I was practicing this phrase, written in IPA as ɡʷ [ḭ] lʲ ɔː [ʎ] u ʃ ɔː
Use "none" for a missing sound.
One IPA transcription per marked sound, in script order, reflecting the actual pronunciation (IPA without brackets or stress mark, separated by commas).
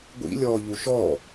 ḭ, ʎ